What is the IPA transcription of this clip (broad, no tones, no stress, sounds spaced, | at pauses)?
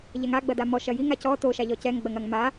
ʎ ɛ ŋ a ɡ͡b ɐ d a m ɔ ʃ ɐ j i ŋ a c ɔ t o ʃ a ʎ ɔ c ɛ ŋ ɡ͡b ɐ ŋ ɐ ŋ m a